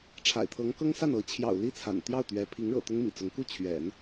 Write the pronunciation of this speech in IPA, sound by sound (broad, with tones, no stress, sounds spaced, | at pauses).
ʈ͡ʂʰ a̰˨˩ ɪ̯ t̪ʰ ɤ˧˥ ŋ k ɤ˥ ŋ s a˥˩ n ɤ˧˥ t͡ɕʰ j ɑ̰˨˩ ʊ̯ l i˥˩ t͡sʰ a̰˨˩ n t̪ j ɑ˥˩ ʊ̯ t̪ ɥ ɛ˧˥ pʰ i˧˥ ŋ ɻ ɤ̰˨˩ t̪ ʊ˥ ŋ m ḭ˨˩ t͡s ʊ˧˥ ŋ k u˥˩ t͡ɕʰ ɥ ɛ̰˨˩˦ n